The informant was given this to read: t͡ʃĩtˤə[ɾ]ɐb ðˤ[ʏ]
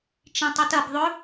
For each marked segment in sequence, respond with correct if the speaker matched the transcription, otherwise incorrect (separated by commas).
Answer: incorrect, correct